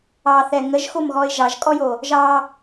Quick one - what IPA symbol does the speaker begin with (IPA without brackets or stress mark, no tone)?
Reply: ɑ